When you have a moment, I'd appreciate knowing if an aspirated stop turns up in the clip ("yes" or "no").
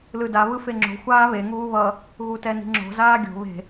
no